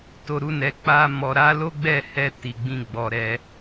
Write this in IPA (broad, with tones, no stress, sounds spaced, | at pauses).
t o˨ ɾ u˧ n ɛ˨ k͡p a˧ m ɔ˨ ɾ a˨˦ l o˦ ɡ͡b ɛ˦˨ h ɛ˧ t i˨ ɡ͡b ĩ˧ ɡ͡b ɔ˨ ɾ ɛ˧